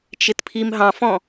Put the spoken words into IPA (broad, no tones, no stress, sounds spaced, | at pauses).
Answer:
t͡ʃ ɪ t pʰ i m ɦ ɑ̃ f ɔ̃